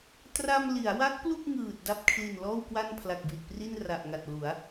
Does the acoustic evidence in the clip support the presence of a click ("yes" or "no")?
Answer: no